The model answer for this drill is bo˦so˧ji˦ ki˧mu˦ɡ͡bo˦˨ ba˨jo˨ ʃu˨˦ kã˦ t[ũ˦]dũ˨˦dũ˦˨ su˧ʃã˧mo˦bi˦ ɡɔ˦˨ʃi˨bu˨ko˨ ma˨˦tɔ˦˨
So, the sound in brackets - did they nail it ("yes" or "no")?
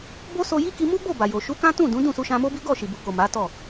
no